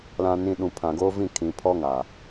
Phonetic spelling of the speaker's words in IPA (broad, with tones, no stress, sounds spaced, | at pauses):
l ã˨ n ĩ˨ ɗ ũ˨ pʰ ã˨ ɡ oː˦ v ĩ˦˨ kʰ ĩ˨ pʰ ɔ˦ ŋ a˨